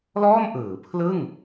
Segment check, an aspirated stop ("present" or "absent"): present